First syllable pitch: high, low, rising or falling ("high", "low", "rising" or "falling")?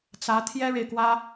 rising